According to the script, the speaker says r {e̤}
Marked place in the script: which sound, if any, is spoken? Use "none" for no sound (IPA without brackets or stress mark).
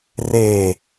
e